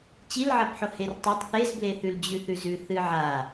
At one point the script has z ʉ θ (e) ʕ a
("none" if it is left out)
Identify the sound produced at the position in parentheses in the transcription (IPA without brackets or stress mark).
ɨ